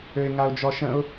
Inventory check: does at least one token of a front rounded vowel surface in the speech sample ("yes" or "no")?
yes